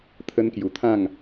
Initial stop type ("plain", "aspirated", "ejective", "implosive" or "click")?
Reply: aspirated